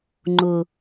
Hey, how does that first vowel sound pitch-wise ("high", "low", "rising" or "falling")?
high